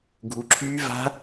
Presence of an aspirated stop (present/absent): present